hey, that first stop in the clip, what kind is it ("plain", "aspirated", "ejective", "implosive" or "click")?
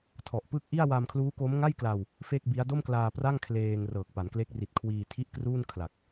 aspirated